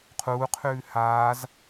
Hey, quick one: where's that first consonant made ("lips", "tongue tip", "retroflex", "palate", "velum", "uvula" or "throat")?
uvula